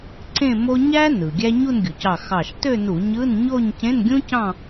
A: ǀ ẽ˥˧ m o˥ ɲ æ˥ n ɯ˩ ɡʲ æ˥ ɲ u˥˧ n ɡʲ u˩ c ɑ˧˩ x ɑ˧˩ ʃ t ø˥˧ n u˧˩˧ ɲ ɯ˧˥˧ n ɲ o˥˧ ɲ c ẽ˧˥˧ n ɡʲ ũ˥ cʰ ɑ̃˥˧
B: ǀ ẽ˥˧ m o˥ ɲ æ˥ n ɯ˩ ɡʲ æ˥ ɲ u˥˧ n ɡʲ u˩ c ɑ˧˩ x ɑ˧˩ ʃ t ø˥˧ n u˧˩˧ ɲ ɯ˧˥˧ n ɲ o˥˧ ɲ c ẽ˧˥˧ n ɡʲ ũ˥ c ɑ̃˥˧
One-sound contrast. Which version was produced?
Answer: B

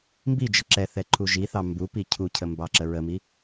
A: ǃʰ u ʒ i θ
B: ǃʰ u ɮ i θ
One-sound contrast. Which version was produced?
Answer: A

